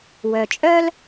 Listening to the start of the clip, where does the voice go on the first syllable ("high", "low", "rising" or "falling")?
low